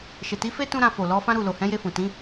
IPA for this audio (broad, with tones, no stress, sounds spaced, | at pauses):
ʃ e˨ t i˨˦ f e˦ t ũ˦ ɾ ã˧ f o˨ l ɔ˨˦ f ã˦ ɾ u˦˨ l o˨ h ɛ̃˨˦ j e˧ f ũ˨ t ĩ˨˦